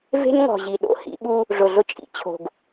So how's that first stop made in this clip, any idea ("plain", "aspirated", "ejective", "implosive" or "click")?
implosive